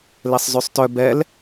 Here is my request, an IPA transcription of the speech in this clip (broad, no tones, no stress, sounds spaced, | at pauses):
l e sˤ z y sˤ t œ b ɛ l